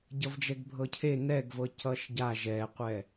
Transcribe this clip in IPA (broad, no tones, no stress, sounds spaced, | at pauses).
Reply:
ɟ ʌ v d͡ʒ ɛ ɡ bʱ ɤ cʰ e n ɛ ɡ v ɤ c ʌ ʃ ɟ a ʒ ɛ qʷ ɛ